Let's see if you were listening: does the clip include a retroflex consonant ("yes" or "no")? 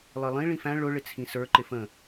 yes